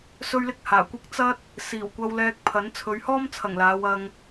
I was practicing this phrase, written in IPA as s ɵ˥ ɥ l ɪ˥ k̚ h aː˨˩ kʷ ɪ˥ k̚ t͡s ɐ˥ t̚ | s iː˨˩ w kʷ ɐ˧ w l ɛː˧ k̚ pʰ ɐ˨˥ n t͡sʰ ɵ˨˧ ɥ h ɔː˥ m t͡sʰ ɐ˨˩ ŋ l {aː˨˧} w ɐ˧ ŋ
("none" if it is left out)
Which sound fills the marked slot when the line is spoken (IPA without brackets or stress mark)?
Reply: aː˨˧